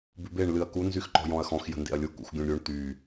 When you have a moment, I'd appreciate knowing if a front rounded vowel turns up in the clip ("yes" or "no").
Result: yes